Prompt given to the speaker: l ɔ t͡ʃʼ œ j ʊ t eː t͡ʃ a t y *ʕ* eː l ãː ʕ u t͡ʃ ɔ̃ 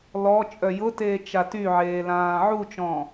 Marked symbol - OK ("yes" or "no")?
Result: yes